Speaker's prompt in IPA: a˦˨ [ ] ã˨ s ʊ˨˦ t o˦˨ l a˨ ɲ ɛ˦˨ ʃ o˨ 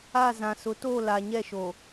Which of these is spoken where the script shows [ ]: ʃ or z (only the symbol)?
z